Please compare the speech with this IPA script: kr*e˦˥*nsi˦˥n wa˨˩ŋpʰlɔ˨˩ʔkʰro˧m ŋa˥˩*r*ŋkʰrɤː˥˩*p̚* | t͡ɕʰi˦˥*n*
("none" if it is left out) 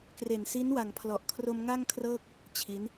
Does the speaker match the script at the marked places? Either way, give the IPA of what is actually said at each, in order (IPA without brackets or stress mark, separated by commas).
e˨˩, none, k̚, n